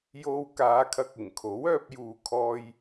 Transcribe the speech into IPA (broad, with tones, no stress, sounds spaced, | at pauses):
j o˧ w k aː˨˧ kʰ ɐ˨ k̚ ɪ˨˩ ŋ kʰ o˨˥ w œː˧ p̚ j uː˨ kʰ ɔː˧ j